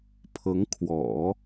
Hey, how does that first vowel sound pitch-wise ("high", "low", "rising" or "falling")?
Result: rising